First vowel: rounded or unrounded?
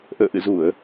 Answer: unrounded